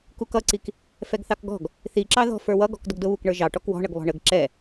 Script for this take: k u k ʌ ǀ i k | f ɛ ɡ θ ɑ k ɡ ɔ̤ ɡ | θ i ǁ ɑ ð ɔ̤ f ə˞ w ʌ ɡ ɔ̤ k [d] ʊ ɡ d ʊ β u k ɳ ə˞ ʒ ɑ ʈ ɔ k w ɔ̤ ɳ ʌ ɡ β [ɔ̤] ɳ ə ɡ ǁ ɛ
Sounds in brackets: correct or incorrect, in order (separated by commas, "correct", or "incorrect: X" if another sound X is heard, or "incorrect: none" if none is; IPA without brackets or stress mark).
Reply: correct, correct